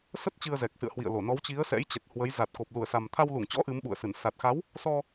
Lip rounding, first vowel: unrounded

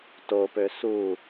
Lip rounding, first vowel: rounded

